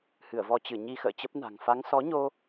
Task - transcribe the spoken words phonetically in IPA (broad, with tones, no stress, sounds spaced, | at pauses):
h ɨ˧˩ ə̯ v ɔ˧ t͡ɕ ɨ˧˩ ɲ i˧ x ə̰ː˧˨ t͡ɕ ə˦˥ p̚ n a̤˨˩ ŋ f a˨˦ ŋ s ɔ˨˦ ɲ o˧